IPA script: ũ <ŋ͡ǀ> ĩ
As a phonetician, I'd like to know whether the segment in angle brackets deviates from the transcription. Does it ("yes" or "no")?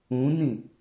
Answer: yes